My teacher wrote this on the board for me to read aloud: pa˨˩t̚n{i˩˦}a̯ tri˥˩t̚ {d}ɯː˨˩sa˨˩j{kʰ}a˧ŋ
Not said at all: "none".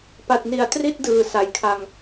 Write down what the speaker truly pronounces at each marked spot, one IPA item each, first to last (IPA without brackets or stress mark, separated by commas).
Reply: i˩˦, d, kʰ